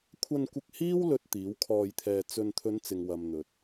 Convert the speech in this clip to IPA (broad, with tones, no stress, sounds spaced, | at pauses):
kʷʰ ɐ˧ n kʷ ɪ˧ k̚ h iː˥ w l ɵ˨ t̚ t̪ iː˨˥ w kʰ ɔː˧ j t̪ʰ ɛː˧ t͡s ɵ˧ n t̪ʰ ɵ˨˧ n t͡s ɪ˨ ŋ w ɐ˨ m n̪ ɵ˨ t̚